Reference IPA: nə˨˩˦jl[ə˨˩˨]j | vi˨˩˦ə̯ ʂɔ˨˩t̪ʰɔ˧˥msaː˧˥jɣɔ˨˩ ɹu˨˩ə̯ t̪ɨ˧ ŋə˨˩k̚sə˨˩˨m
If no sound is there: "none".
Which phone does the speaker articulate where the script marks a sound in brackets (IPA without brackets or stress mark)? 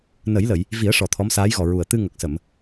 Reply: ə˨˩˨